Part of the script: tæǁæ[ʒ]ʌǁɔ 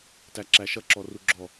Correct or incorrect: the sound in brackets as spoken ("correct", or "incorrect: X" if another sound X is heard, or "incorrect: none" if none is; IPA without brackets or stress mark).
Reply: incorrect: ʃ